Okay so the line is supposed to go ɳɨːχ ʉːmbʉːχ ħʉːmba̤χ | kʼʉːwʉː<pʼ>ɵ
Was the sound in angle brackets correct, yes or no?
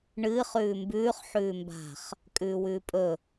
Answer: yes